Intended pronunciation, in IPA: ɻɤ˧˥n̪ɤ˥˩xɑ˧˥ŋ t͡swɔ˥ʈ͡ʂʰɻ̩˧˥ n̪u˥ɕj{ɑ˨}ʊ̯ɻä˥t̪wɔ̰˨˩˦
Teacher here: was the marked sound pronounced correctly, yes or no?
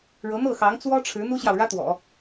yes